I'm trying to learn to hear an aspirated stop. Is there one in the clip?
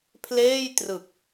yes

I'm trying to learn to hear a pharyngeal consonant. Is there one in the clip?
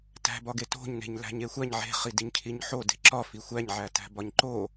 yes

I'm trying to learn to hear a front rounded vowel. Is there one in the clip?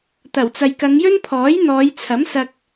no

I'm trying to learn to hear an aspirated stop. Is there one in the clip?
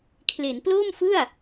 yes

